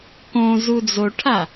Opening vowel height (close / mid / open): mid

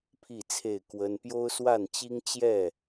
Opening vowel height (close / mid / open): close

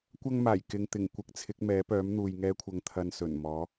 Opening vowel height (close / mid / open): open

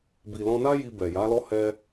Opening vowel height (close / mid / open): close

